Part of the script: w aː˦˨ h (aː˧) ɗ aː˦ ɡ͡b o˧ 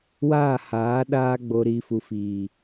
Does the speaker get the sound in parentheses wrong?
yes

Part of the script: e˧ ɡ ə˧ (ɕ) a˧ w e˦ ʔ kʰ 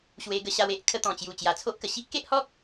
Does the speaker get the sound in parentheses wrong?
no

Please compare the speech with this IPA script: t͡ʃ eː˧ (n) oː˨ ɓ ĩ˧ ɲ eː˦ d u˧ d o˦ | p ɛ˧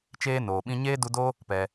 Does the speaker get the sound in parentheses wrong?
no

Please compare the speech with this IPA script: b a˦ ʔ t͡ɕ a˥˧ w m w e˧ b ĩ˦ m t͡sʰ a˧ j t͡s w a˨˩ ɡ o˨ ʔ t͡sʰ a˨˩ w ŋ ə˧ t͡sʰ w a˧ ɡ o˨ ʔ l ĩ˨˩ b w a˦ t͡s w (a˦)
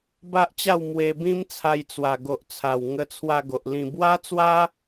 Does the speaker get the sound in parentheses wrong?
no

